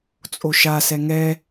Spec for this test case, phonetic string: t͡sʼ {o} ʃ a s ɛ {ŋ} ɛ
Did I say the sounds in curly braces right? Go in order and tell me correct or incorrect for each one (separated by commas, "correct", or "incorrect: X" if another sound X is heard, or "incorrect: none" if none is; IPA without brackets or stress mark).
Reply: correct, correct